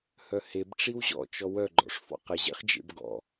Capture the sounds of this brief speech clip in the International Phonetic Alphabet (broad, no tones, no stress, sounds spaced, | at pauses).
h œ h e b ʈ͡ʂ i w ʑ ɔ̰ t͡ʃ ɔ w œ ɡ͡ǃ ɔ̰ ʂ f ɔ̰ q ə ʑ ḛ χ d͡ʒ ḛ b ɡ ɔ̰